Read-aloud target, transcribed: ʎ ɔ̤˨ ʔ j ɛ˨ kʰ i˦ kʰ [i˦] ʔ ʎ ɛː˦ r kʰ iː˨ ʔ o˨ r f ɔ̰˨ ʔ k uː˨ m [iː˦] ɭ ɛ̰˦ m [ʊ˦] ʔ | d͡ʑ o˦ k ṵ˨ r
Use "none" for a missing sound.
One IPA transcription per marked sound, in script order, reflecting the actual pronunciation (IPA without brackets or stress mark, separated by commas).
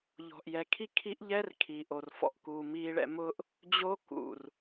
i˦, iː˦, ʊ˦